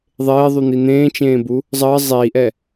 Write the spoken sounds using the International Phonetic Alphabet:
ðˤ eː ðˤ u n̪ i n̪ ẽː t͡ʃ ẽː b u | zˤ əː zˤ iː ʔ ɛ

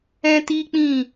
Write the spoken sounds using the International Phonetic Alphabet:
ɛ̃˦ t i˦ k͡p ĩ˦˨

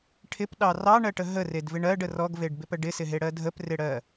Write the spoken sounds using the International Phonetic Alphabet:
ʈʰ ɪ p ɗ ɑ r ɑ ɳ ɜ ʈ ə ɦ ə r e d v ɪ ɳ ɜ ɖ ə r ɔ ɡ v e ɖ b ɪ p ə ɖ ɪ s ɪ ɦ e ɽ ɜ dʱ ə p r ɪ ɽ ɜ

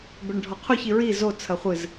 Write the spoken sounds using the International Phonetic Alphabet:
b ɘ ɳ ɖʱ ɔ qʰ u ç i ɹ i z o t͡sʰ ɐ χʷ ɨ z

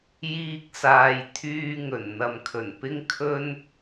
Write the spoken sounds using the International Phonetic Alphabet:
j iː˧ k̚ s aː˨ j t̪ʰ yː˧ ŋ ɵ˨˩ n n̪ ɐ˨ m kʰ ɵ˨˩ n p ɪ˥ ŋ kʰ ɵ˥ n

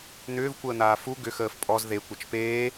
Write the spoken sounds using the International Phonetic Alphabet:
n̪ ʏː v kʷ əː n̪ aː f u ɡ ʏ x əː f pʼ ɔ z ð e kʷ ɐ t͡ʃ p eː

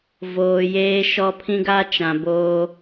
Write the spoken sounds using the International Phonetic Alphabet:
v oː˨ j eː˦ ʃ ɔ˦ pʰ ĩ˦ ɡ a˦ t͡ʃ ã˨ b oː˦

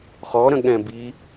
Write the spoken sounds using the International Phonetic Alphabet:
χ ɔ ɾ ə̃ ɠ ɛ̃ b i

